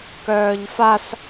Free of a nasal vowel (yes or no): yes